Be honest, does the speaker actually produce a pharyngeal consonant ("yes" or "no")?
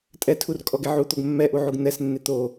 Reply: yes